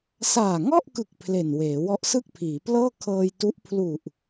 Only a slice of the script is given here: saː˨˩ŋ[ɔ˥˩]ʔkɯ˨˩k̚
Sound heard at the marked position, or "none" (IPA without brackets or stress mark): ɔ˥˩